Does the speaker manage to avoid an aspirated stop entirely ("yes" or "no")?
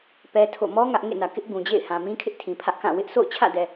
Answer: no